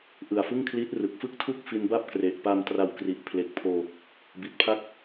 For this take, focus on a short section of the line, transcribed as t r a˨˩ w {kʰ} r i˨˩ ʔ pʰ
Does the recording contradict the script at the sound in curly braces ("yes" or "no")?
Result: yes